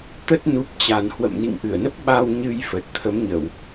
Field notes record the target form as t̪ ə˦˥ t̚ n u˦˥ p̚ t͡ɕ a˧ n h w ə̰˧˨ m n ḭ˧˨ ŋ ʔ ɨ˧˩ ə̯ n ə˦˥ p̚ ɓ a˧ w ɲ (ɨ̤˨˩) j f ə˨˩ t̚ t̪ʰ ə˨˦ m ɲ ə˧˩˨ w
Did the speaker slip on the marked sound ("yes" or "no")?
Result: yes